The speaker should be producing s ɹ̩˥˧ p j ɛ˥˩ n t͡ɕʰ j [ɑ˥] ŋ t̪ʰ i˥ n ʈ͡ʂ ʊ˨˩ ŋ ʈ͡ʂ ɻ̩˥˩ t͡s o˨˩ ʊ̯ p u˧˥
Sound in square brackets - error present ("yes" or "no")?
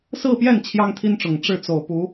no